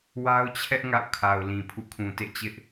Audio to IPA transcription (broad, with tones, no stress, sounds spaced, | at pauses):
w a˦ ʊ̯ t͡ɕʰ ɛ˦ ʔ ŋ a̰˦˨ ʊ̯ kʰ a˨ ʊ̯ l ĩ˨ pʰ ṵ˦˨ kʰ ũ˨ t ḛ˦˨ t͡ɕ ɪ˦ ʔ